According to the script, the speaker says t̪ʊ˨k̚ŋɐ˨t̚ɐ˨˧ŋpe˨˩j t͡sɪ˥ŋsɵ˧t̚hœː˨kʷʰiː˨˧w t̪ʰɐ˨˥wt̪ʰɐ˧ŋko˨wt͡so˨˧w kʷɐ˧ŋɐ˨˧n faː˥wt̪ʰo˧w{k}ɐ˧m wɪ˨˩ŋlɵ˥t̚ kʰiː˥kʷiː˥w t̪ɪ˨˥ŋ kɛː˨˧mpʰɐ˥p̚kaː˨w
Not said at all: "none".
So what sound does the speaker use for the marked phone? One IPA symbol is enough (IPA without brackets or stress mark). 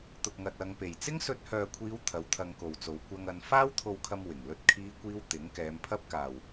kʰ